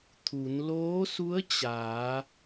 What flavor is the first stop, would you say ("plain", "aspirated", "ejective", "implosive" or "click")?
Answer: aspirated